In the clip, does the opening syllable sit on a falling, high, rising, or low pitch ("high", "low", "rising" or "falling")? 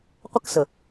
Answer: high